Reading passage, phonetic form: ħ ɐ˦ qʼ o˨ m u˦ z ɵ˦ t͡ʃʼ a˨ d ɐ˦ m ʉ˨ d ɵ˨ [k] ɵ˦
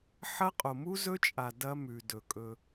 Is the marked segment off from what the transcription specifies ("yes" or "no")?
yes